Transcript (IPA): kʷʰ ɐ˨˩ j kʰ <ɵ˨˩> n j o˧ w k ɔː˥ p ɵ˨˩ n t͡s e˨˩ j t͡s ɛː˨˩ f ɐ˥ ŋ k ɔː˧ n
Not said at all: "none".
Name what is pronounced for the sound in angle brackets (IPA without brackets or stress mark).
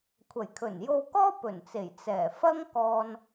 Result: ɵ˨˩